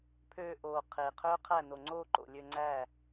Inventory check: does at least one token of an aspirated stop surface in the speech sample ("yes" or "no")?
yes